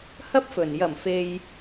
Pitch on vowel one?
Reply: high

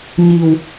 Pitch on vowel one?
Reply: low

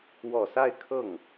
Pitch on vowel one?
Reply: low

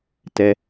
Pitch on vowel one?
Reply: low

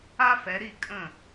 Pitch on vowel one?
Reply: high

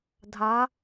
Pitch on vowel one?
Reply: rising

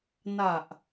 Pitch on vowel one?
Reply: low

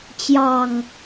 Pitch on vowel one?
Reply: low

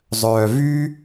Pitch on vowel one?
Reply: low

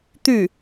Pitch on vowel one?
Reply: falling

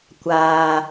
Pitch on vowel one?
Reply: low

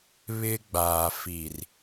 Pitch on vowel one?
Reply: high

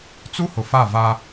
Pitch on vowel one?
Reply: high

